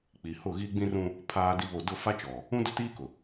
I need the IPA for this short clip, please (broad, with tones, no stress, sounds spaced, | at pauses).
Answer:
k͡p i˨ h ʊ˦˨ ɣ i˦ ɡ͡b ĩ˦ r ũ˦ | pʰ aː˦ d i˦ β o˦˨ d ʊ˦˨ f a˦ t͡ʃ ɔ˨ | ũ˦ d ʊ˦ t iː˦ k ʊ˨